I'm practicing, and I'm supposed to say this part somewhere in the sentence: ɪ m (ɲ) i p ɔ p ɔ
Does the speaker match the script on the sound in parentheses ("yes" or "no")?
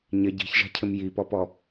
no